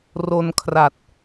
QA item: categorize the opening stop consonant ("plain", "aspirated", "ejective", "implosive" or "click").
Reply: aspirated